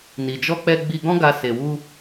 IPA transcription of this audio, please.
ni˨d͡ʒɔ˧k͡pɛ˧ ɡ͡bi˧ɡɔ̃˦ɡa˧ se˨wu˧

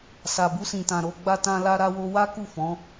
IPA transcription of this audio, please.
sa˨bu˧sĩ˨tã˨ ɾo˨˦ɡ͡ba˦tã˦ la˦ɾa˦wo˦ wa˦ku˦˨fɔ̃˨˦

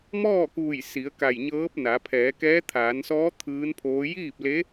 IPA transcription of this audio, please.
mɔː˥˨kuː˧˩j si˩˧ə̯ ka˧˩jɲɤː˧˥p̚na˩˧ pʰɛː˩˧kɛː˧˥ t̪ʰaː˩˧nsɔː˧˥ t̪ʰɯː˧˥npʰoː˧˥ jiː˥˨p̚le˧˥

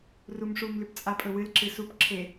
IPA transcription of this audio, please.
rumʂum lʉpt͡sʼapʼɵwɨl ǁɨsup ǁʰe

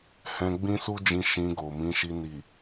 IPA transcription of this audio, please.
hɛ̃˧ɡ͡bĩ˦su˦d͡ʒĩ˧ ʃĩ˧ɡo˨mĩ˨˦ʃi˧ ni˨

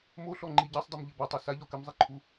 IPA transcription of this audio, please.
moɬɔŋ͡ǃi ɟasˤdˤumʎɘ batˤu saʎɔ kɘmzˤiǃʰu

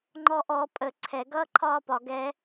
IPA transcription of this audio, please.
ŋ͡ǃɔʔɔ pʼə ǀʰɛ ɡʌːǃʰɒːpɒ ɡɛ

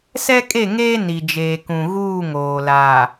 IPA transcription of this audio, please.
sɛ˦kʼe˦˨ŋeː˦ ni˨d͡ʒeː˨kũ˨ ɣuː˦˨ŋoː˨laː˨

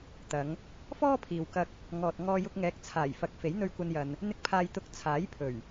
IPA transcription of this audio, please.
t̪ɐ˨˧ŋ | fɔː˥pʰiː˨wkɐ˧k̚ | ŋɔː˨t̚ ŋɔː˧jʊ˧k̚ŋɛː˨˥k̚ t͡sʰaː˨˩jfɐ˨k̚ fe˨˥jn̪ɵ˧ɥkʷɐ˧njɐ˨n | n̪ɪ˧k̚pʰaː˨jt̪ʊ˨˥k̚ t͡sʰaː˨˥jpʰɵ˨˩ɥ

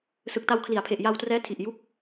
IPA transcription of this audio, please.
sɯ˨˩k̚ta˧wkʰli˩˦a̯pʰe˨˩ʔ ja˧wtrɛː˦˥tʰi˨˩ʔ ju˦˥k̚

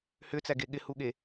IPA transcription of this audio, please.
hʏt͡sæɡe ɠɪhuɠe

